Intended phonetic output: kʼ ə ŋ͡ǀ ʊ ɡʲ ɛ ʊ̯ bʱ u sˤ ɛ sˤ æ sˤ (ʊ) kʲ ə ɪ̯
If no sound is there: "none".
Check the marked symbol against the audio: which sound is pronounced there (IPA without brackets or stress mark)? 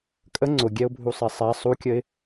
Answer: u